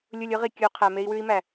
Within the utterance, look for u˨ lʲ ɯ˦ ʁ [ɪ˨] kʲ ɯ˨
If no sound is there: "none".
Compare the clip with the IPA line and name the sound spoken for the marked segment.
i˨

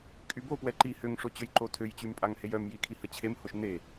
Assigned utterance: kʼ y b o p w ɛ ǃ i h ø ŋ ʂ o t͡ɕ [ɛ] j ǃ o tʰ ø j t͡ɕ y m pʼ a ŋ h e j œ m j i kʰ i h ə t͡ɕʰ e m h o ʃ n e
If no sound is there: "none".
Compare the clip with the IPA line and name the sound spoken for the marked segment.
ø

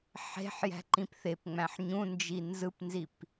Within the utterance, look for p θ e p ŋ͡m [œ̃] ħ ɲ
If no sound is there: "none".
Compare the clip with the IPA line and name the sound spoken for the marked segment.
æ̃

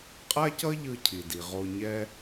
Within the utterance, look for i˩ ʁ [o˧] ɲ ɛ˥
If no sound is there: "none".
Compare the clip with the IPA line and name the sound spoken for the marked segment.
o˧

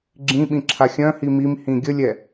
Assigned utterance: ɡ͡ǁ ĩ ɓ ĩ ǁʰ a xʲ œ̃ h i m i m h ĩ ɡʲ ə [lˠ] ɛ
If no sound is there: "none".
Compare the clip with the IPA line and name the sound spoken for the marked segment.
lʲ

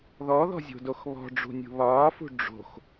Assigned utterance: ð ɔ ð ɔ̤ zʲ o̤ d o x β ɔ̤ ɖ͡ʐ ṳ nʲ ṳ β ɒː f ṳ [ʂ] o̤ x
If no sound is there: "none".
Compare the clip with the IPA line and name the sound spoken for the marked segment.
ɖ͡ʐ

